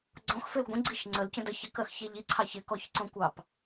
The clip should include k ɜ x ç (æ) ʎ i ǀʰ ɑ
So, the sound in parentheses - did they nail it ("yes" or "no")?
no